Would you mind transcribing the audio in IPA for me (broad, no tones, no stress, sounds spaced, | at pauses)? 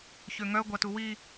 ç ø ŋ œ ɡʷ a t u w i